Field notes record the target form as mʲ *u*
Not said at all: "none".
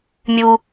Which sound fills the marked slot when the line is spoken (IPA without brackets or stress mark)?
u